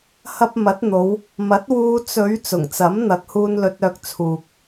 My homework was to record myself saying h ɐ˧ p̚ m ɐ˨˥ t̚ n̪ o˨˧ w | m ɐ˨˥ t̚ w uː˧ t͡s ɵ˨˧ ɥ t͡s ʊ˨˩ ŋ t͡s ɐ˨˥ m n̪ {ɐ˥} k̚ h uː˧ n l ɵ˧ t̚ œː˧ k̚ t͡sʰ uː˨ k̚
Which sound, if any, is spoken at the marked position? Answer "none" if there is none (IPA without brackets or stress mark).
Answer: ɐ˨